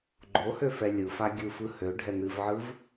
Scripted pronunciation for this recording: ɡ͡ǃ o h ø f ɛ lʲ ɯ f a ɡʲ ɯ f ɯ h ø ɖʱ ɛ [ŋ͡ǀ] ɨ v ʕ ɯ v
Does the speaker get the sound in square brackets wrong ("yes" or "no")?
yes